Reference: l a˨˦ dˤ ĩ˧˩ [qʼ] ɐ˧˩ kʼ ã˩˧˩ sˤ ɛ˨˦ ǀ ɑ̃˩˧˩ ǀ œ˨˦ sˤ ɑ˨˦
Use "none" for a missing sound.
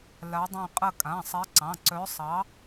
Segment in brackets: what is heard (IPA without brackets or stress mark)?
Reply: qʼ